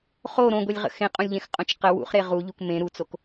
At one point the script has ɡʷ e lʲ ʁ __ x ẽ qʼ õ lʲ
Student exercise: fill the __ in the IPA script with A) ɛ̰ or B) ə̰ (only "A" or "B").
B